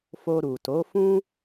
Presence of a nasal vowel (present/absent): present